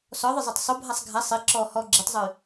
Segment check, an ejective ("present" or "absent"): absent